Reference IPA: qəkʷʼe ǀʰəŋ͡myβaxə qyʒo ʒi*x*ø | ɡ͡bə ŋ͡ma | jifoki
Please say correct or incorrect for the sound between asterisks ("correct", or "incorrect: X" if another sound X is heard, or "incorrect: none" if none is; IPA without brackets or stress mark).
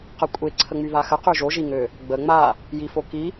incorrect: ŋ